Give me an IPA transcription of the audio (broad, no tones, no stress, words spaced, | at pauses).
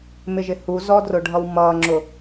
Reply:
mɪʒɪhuzɔ drʊɖʱʌwmʌːŋ͡ǁʊ